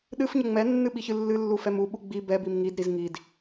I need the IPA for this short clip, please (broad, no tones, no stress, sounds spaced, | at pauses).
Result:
ɗ ɨ f ɲ ə ŋ͡m ɛ nː ɨ ɓ i ç ɨ lː ɨ lː u f ɛ m u ɓ u ɡ͡b i b ɛ b i m ŋ i d ɾ i z ŋ i d